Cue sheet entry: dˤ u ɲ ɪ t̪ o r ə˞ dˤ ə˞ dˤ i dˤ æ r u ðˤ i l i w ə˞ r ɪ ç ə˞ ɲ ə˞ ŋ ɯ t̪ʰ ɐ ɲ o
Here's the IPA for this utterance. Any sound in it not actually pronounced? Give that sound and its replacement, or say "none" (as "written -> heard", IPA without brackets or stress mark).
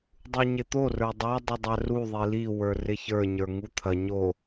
ɯ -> u